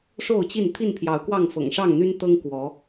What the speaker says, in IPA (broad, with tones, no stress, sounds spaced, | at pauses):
ʂ o˥˨ ʊ̯ t͡ɕ i˥˨ n t̪ʰ i˥˨ n pʰ j ɑ˨˦ ʊ̯ k w ɑ˥˨ ŋ f ɤ̰˨˩ ŋ ʂ ɑ˥˨ ŋ n̪ y˦ n t̪ ɤ˦ ŋ k w ɔ˨˦